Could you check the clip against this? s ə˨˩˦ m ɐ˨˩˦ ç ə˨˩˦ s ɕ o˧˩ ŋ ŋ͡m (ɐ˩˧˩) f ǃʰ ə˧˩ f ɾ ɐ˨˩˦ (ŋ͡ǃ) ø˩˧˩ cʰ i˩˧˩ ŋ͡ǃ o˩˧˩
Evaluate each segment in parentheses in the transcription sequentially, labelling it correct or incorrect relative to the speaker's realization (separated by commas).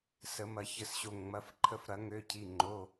correct, incorrect